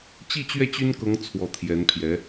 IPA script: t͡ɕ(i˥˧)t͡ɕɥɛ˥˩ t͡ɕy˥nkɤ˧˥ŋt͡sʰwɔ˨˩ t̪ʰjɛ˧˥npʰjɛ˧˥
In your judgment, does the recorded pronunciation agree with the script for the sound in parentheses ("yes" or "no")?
yes